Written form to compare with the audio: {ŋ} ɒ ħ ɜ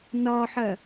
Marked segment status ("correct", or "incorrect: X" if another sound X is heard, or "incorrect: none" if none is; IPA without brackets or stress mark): incorrect: n